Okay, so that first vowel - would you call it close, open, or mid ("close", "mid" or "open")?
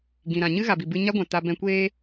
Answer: close